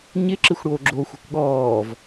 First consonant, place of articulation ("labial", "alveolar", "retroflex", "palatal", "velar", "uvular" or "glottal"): palatal